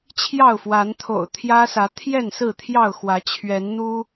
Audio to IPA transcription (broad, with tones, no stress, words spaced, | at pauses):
t͡ɕʰjɑ˥˨ʊ̯fwa˨˦nt̪ʰo̰˨˩ʊ̯ t̪ʰjä˦sä˨˦ t̪ʰjɛ˥˨nsɹ̩˥˨ t̪ʰjɑ˥˨ʊ̯xwä˨˦ t͡ɕʰɥɛ˨˦nn̪u˦